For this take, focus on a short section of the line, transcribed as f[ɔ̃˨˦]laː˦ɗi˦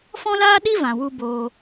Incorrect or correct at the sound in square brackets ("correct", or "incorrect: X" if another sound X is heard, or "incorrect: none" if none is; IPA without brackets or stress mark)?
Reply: incorrect: ɔ̃˦